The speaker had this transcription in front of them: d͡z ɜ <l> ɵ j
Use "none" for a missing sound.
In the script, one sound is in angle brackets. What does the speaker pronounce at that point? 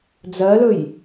l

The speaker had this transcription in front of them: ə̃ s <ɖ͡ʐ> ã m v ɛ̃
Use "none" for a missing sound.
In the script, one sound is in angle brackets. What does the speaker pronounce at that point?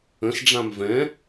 ɖ͡ʐ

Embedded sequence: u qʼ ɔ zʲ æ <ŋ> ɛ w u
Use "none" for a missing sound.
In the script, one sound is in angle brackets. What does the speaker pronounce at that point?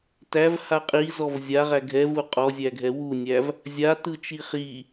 ɡʱ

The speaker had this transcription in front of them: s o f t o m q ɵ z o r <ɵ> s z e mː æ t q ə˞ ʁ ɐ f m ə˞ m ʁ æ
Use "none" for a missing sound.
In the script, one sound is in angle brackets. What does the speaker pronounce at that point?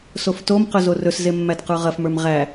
ɵ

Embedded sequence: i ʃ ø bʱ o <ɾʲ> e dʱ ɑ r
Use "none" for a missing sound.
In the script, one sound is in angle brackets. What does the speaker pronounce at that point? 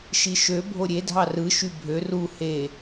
ɾʲ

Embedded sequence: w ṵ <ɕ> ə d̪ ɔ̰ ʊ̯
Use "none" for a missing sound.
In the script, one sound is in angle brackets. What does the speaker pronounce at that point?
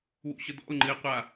ɕ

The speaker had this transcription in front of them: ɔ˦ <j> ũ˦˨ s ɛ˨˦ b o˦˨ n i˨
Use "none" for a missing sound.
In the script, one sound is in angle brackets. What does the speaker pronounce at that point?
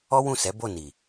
w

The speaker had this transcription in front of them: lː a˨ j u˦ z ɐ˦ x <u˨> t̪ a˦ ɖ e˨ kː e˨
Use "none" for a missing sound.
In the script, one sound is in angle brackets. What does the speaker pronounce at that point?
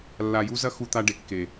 u˦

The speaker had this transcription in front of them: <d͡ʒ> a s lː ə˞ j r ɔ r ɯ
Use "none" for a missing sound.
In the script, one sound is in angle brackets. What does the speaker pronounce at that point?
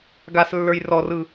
ɡ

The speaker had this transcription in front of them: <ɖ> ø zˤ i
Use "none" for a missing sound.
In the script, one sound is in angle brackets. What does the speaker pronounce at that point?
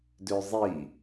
d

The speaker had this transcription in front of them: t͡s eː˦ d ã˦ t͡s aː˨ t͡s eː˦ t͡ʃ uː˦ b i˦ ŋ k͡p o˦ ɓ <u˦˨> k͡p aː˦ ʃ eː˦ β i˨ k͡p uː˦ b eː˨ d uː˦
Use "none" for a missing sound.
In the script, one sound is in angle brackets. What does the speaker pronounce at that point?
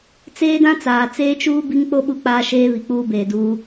u˦˨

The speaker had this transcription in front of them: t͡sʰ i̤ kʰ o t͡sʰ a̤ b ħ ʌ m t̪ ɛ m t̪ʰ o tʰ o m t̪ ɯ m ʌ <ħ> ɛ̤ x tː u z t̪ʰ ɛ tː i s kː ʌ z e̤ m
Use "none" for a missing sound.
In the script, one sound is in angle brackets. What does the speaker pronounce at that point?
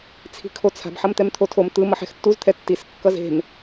ħ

